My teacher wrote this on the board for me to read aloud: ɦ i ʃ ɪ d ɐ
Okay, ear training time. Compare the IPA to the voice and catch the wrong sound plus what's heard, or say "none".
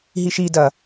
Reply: ɪ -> i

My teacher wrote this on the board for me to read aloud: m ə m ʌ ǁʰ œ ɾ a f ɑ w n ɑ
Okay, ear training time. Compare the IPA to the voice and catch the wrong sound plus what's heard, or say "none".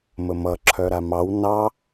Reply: f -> m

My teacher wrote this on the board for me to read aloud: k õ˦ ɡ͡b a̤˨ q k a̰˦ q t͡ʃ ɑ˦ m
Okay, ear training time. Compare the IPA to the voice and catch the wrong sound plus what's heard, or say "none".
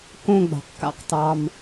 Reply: t͡ʃ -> t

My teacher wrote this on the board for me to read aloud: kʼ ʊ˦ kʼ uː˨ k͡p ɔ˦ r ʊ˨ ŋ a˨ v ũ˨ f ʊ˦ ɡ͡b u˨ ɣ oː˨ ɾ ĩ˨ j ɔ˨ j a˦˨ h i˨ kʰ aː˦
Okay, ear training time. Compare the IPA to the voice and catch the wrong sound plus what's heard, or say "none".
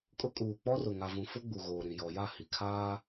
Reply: none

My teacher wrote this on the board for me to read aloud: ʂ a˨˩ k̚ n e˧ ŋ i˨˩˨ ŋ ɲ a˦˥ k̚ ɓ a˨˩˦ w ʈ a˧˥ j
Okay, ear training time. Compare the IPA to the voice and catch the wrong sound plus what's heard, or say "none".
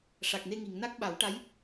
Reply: ɲ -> n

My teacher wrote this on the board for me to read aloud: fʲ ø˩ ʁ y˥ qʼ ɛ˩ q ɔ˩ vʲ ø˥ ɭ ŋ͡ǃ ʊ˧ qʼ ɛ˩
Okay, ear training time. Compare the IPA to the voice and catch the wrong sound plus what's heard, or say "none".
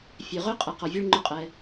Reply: y˥ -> ø˥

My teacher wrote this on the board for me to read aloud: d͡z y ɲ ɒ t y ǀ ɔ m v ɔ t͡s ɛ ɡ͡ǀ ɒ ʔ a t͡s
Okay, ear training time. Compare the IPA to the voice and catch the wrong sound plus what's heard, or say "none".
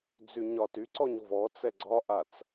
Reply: m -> ɲ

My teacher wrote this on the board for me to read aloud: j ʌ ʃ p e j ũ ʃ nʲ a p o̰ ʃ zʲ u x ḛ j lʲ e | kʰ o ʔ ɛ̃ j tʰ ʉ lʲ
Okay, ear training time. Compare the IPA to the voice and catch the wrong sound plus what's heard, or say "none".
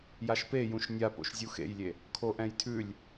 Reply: ʌ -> a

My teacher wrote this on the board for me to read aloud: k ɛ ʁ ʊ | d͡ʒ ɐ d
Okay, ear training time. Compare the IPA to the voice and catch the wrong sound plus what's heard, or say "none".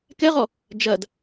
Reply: ʊ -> ɔ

